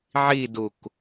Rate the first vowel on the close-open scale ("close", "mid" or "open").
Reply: close